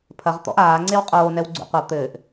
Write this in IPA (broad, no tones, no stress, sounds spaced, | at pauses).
pʰ ɐ ʁ t̪ ɔ̰ ʔ aː ŋ͡ǀ e w qʼ oː n ɛ w ɡ͡ǀ ṵ qʷ ɐ t̪ ɘ ʔ